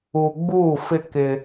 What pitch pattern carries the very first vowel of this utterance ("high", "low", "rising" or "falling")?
low